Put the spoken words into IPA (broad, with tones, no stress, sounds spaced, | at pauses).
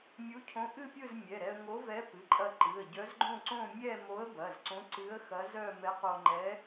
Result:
mʲ u˧˥ cʰ õ˧˥ ʔ ɨ˥˧ pʲ ɯ˥˧ z mʲ ɛ˩˧˩ ɾ ɛ˧ ə̯ ŋ o˧˥ v ɛ˧˥ p ɨ˩˧˩ ǃʼ ɐ˧ ǃ ɨ˩˧˩ ə̯ ɟ œ˧˥ z ɡ͡ǃ õ˥˧ ǀ õ˥˧ mʲ ɛ˥˧ m o˧˥ ə̯ b ɐ˩˧˩ z ǀ õ˧˥ ǀ ɨ˧˥ ə̯ x ɐ˧˥ z œ˥˧ m ɛ˧˥ q o˧ ŋ͡ǃ ɛ˧˥